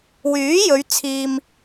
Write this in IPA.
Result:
w yː˨˥ j ɵ˨˧ ɥ t͡sʰ iː˧ m

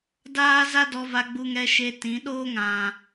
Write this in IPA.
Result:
d aː˦ z a˦ d ɔ˧ v a˧ ɡ͡b u˧ ŋ ɛ˧ ʃ e˧ t ĩ˨˦ ɗ oː˦ ŋ ã˨

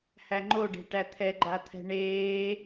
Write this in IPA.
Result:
h æ ŋ͡ǃ o ɖ e̤ ʈ æ t̪ʰ ɛ ɡ͡ǃ a t̪ʰ ɛ̤ ɳ eː

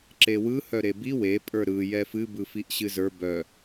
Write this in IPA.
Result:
ǁ e w ɯ h œ ɾ e b i w e pʼ ə˞ ɾ ɯ j ɛ f ɨ b ɯ f i ʔ ɕ ɨ z ə˞ b œ

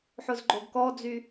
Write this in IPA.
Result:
ħ ʊ z ɡ͡ǃ o ɡ k ɔ d͡z y

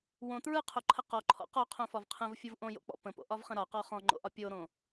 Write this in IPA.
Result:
w õ t ɹ ɯ qʰ o ǃʰ ə q ɔ ǃʰ ɔ̰ q ɔ qʰ õ f ɒ v qʰ ə̃ v fʲ ɯ v ʔ õ j o̰ k͡p ɔ̰ p ə̃ p o̰ ʔ ɒ v χ ə̃ ɾ ɒ q ɔ χ ɔ̃ ŋ͡ǃ o̰ ʔ ɒ pʲ o ɾ õ

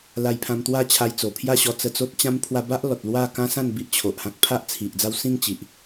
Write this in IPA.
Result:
l a˧ j pʰ ã˧ m t̪ w a˥˧ t͡ɕʰ a˧ j t͡s o˨˩ pʰ j a˥˧ ɕ ɔ˧ t͡s ə˧ t͡s o˦ t̚ t͡ɕ ã˦ m pʰ w a˧ b a˦ ʔ l ɔ˨ t̚ l w a˥˧ k ã˦ s ã˥˧ n b i˦ ʔ t͡ɕʰ o˨ ʔ h ã˦ k̚ pʰ a˦ ʔ t͡sʰ i˨ ʔ d͡z a˥˧ w s ĩ˥˧ ŋ t͡ɕ i˨ ʔ

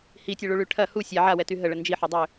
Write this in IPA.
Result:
h i tʲ ɛ ɭ u ɭ y ʈʰ ɐ h u sʲ a ʕ a w ɛ t y ɦ ə ɭ ə n d͡ʒ i ħ ø dˤ ø

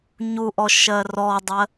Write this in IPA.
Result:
ɲ u ʔ ɔ ʃ ɜ r ɔ dˤ ɜ

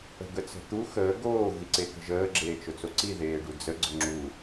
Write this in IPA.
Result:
ə̤ ɡ ə t͡s ə̤ t̪ u x əː ɡ oː ɣ i ǀ e k ə̤ ʒ əː ɡ͡ǁ eː t͡ʃ ʊ t͡s o ǀ i ð eː ɖ u d͡z ə ɡ͡ǀ ʊ ŋ͡ǁ u

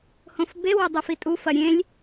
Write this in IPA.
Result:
h õ f b e w ɐ dˤ i f i tʼ u f ɐ ɾʲ ẽ lʲ

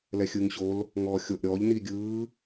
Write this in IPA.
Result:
l ɛ xʲ ɯː ŋ ɕ o l | ŋ ɔː xʲ o ʔ ɾʲ ɔː ʎ n i ɡʲ ɯː

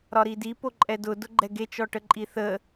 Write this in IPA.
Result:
ɾ ɒ ɾ i d i p o ǃʼ ɛ d ʊ d ʊ ɡ͡ǃ ɛ ɡ e t͡ʃ ɔ ʈ ə ǃʼ i θ ə

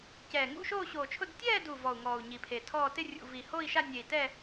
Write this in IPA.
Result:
c ɛː˨˩ ŋ ṵ˥˧ ʃ oː˥˧ ɕ oː˨˩ t͡ʃʰ ʊ˥˧ d tʲ ɛː˥˧ d u˨˩ v ɔ˨˩ u̯ ŋ ɔː˨˩ u̯ ɲ i˨˩ pʰ e˨˩ tʰ ɔː˥˧ t ɪ˥˧ rʲ ṵ˨˩ v i˨˩ h o˥˧ i̯ ʃ a˥˧ nʲ e˨˩ i̯ t ɛː˥˧

